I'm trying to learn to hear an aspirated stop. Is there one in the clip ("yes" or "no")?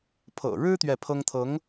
yes